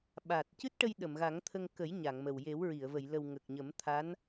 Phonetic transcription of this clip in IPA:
ɓ a˨˩ t̚ c ɨ˦˥ t̚ ʈ ə˧ j ɗ ə˨˩˨ m ɣ a˨˩˦ ŋ t̪ʰ ə˧ ŋ k ə˨˩˦ j ɲ a˨˩˨ ŋ m ə˨˩ w j e˨˩˦ w ɹ i˨˩˨ ə̯ v ə˨˩˨ j l ə˨˩ w ŋ ə˨˩ k̚ ɲ ə˨˩˦ m t̪ʰ a˧˥ n

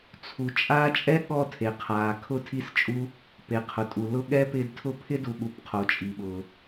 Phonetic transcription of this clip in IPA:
t͡sʰ u˩ t͡ʃʼ aː˦ t͡ʃʼ ɛ˥ ɠ ɔ˦ tʰ e˩ qʰ aː˩ kʰ ʊ˥ tʰ i˥ s t͡ʃʼ u˥ | p e˩ qʰ ʊ˩ tʼ u˩ l ʊ˥ ɠ ɛ˥ p ɪː˦ d tʰ ʊ˥ pʰ ɪ˥ d u˨ ɠ u˨ p qʰ o˩ t͡ʃʼ i˩ ɓ ʊː˩

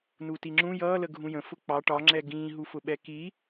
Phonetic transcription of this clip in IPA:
n u t i ŋ͡ǁ ũ j ʌː l ə ɡʱ ũ j ə̃ f ʊ k͡p ɑ ʈ ɒ ŋ͡ǁ ɛ ɡ ĩː ɦ u f ʊ ɓ ɛ k i

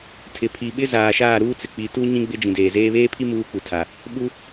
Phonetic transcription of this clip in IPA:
tʰ ɪ˨ pʰ i˨ ɓ ɪ˦ z aː˨ ʃ aː˦˨ ɾ uː˦ t͡s ɪ˨ k͡p i˨ t u˦ ɲ ĩ˦ ɡ͡b ɪ˦ d͡ʒ ĩ˨ d eː˨ z eː˦ β eː˦ pʰ i˦ m uː˦ k͡p u˨ tʰ a˨ | ɓ u˦

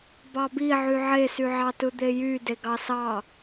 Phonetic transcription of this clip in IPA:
b ɑ b i ʕ y ʕ e s y ʕ ɑ t ɯ d̪ e j y d e ɡ ɑ s ɑ

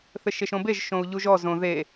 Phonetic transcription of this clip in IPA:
θ ɘ ʃ e ʃ õ b e ʒ ʃ õ u̯ ʎ u ʒ ɔ z õ ð e

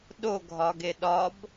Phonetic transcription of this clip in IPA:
ɗ o ɡʱ ɒ ɡ e ɗ ɒ b

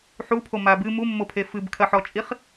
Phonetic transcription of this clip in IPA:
ħ u pʰ o m a b ɨ m u mː o pʰ e f ɨ b kʰ ɐ ħ ɔ t͡ʃʼ i χ

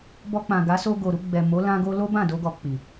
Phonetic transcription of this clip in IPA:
b ɔ˧ k͡p ã˨ ɡ a˨˦ s o˧ ɡ o˨ ɾ u˧ ɡ͡b ɛ˨ m o˨˦ l ã˧ ɡ o˧ l o˦ b ã˦˨ d o˧ ɡ ɔ˨ k͡p i˨

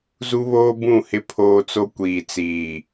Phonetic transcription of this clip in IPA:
z u˦ β oː˦ b ũ˦˨ h ɪ˦ pʰ oː˦ t͡s o˦ kʷ iː˨ t͡s iː˨

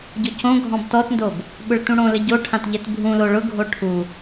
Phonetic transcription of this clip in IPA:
ɟ ʊ c õ ɡʱ ɔ̃ b t ɔ t n d o b | ɓ ʊ ɭ t ũ ɽ õ l ɘ ɟ o ʈʰ ã t ʎ ɛ t bʱ ũ l o ɭ ʊ ɡʱ o ʈʰ u

